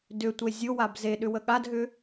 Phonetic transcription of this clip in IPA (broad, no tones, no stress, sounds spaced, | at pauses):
d ʏ tʷ e zʲ ʊ w a b z e ɗ ʏ w ə ɠ a d ɦ ʏ